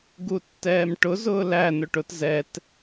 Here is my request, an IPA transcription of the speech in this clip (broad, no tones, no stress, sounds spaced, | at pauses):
ɡ u tː ɛː m ʈ ʊ z ʊː l æ n ʊ ʈ ʊ t z ɛ t